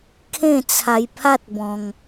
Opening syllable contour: falling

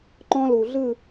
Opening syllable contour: high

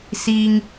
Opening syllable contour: low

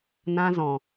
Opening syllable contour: high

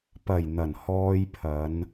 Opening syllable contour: low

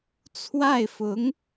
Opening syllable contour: falling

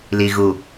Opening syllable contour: low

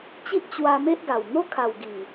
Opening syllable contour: high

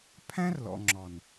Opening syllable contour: high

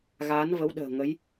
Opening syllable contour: rising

